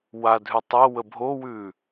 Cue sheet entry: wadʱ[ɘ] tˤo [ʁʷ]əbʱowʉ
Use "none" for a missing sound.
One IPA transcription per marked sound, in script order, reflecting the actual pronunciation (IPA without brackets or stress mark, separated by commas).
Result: ʉ, w